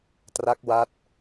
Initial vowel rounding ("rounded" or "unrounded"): unrounded